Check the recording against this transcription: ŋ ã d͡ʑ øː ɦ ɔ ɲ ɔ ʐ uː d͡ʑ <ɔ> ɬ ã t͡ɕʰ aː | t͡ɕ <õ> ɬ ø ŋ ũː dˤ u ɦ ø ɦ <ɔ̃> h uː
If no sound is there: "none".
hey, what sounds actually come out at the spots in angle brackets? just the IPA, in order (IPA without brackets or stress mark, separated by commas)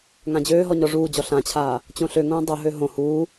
ɔ, õ, õ